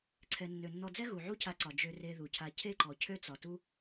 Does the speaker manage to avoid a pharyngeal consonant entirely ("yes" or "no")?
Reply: no